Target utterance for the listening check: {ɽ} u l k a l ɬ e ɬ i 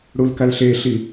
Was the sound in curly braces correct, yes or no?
yes